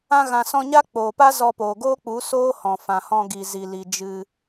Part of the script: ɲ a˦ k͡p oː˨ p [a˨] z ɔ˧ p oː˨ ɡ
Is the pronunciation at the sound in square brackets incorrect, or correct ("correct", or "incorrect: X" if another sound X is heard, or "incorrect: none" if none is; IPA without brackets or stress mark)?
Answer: incorrect: a˦